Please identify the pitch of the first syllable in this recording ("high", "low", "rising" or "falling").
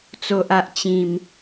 low